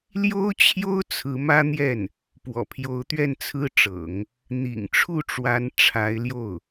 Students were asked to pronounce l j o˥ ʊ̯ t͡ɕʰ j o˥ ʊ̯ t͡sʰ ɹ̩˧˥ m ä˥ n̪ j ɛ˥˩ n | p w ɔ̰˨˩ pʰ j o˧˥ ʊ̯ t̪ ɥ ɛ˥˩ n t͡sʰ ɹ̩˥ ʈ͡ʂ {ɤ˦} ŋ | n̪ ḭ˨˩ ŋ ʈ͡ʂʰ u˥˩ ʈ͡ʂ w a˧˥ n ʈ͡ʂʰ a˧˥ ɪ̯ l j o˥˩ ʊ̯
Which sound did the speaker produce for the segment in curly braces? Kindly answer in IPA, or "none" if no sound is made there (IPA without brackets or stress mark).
ɤ̰˨˩˦